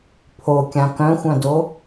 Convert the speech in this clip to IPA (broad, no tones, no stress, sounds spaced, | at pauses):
pʰ o kʲ ã k œ̃ xʷ œ̃ d o